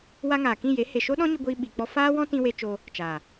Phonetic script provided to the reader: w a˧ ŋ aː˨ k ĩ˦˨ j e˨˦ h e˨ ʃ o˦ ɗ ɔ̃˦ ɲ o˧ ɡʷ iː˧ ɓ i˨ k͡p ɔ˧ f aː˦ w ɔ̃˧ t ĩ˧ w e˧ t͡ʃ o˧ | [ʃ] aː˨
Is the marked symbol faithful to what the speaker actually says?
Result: no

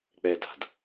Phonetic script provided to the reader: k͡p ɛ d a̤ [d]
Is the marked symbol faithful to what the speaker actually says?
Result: yes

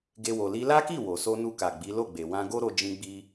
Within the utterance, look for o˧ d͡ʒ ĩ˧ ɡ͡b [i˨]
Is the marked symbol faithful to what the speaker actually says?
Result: no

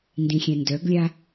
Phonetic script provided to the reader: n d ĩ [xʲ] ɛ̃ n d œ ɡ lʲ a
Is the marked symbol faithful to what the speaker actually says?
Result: yes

